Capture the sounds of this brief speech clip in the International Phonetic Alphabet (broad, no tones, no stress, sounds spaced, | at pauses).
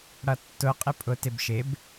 ɽ ʌ tː ʊ qʼ ɪ pʼ ʊ t ɪ b ʃ ɪ b